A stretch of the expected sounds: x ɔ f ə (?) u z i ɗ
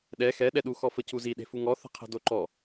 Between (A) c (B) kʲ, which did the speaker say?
A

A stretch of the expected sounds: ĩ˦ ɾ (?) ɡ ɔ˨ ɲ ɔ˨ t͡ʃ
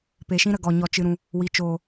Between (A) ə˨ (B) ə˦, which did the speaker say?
A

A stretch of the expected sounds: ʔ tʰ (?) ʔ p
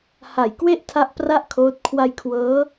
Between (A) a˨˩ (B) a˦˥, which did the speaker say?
B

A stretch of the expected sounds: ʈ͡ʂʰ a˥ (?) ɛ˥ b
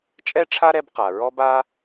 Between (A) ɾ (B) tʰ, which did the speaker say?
A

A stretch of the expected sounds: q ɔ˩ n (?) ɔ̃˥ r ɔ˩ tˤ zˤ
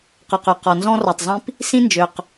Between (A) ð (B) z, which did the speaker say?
B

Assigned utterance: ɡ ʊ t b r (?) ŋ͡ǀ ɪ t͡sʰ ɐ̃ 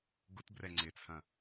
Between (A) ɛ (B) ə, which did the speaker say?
A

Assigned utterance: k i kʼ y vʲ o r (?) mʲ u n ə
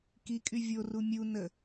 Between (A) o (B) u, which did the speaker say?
B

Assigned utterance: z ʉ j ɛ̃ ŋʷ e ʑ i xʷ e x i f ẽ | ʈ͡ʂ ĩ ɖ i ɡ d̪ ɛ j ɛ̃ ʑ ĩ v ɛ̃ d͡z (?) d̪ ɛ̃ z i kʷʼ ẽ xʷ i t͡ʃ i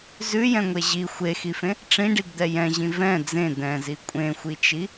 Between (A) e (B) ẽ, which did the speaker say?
B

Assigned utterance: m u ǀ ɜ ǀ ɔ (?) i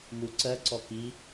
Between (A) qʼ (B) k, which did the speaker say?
B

